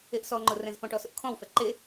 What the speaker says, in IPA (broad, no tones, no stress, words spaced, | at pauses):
eʔsɔŋ͡ǃʊ rɛ̃zfɔ̃ʈɔ sʊʔkʰɔ̃wfɛ ǃe